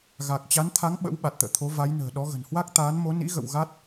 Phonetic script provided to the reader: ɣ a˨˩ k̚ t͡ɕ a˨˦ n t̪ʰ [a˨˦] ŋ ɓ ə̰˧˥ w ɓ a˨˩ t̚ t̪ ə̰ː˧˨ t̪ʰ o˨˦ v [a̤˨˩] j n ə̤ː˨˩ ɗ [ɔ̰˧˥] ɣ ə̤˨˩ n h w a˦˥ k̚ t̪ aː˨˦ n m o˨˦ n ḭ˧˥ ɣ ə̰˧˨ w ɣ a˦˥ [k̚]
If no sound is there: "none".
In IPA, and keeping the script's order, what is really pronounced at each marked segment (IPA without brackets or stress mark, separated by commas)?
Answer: a˨˦, a˨˦, ɔ˨˦, t̚